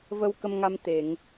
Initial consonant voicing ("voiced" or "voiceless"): voiced